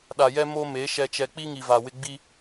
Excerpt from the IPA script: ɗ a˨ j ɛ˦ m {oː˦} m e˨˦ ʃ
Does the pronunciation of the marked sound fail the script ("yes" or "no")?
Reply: yes